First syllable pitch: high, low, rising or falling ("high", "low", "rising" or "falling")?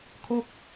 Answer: falling